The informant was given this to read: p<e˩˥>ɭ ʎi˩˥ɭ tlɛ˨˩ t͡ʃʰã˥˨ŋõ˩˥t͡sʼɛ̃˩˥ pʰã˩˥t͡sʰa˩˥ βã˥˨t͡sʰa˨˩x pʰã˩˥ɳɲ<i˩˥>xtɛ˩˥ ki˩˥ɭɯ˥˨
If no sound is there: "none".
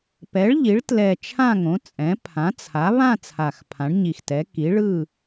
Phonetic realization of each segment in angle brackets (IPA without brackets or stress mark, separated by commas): ɛ˩˥, i˨˩